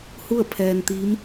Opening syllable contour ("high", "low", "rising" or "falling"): falling